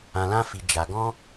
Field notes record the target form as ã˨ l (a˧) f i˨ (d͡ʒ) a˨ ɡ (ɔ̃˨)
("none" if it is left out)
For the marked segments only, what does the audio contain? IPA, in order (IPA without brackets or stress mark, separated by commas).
ã˧, d͡ʒ, ɔ̃˧